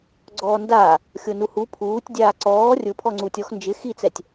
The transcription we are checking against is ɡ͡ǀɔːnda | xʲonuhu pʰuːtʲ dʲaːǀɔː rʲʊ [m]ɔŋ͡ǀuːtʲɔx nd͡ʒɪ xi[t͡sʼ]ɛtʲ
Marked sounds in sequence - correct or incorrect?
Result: incorrect: pʰ, incorrect: t͡s

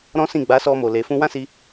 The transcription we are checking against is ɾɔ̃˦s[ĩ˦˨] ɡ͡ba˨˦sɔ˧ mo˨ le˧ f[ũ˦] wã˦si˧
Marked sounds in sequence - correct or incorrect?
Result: correct, correct

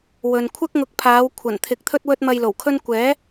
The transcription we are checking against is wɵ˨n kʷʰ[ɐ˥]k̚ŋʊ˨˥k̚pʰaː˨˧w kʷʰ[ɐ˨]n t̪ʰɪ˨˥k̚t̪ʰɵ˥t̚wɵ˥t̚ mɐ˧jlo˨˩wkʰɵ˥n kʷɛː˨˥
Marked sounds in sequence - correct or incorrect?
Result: correct, incorrect: ɐ˨˩

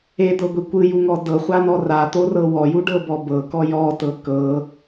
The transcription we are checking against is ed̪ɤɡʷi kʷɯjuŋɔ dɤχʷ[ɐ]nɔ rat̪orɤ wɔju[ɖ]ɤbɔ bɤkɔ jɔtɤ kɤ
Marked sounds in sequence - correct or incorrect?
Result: incorrect: a, correct

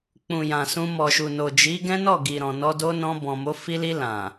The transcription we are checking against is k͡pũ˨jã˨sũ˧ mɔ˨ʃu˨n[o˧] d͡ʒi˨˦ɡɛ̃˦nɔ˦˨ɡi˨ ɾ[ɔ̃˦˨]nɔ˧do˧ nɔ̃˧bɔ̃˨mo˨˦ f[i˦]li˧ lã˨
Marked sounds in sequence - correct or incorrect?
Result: incorrect: o˨, incorrect: ɔ̃˨, incorrect: i˧

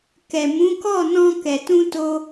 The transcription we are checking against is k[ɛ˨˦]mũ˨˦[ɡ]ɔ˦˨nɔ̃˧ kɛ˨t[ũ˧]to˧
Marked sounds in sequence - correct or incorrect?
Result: incorrect: ɛ˨, incorrect: k, correct

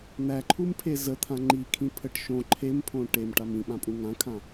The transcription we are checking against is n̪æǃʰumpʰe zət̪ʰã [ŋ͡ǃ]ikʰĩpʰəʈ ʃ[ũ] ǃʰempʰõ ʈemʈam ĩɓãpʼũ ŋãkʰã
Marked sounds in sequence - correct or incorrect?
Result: correct, incorrect: õ

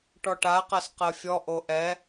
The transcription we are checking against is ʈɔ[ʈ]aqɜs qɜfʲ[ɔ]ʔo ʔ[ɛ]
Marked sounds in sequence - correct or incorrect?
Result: correct, correct, correct

